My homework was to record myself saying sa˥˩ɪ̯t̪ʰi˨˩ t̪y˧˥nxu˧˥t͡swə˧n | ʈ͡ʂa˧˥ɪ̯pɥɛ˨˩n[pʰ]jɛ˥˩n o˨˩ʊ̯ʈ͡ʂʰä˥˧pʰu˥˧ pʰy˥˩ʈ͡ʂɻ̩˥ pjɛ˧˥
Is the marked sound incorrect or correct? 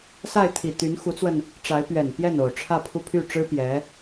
incorrect